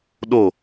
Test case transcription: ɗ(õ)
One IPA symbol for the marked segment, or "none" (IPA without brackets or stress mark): o